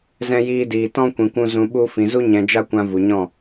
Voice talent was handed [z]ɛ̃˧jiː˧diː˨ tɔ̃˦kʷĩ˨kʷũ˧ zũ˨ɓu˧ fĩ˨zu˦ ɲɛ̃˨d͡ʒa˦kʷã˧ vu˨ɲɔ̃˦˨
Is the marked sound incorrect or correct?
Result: correct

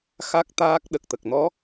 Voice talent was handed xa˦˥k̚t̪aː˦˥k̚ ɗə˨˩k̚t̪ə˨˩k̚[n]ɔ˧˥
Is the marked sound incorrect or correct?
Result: correct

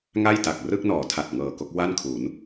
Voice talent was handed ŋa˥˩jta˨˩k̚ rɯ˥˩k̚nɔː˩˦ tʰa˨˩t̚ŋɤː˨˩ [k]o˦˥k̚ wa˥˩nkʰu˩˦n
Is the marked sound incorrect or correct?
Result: correct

